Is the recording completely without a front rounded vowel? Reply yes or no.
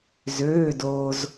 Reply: no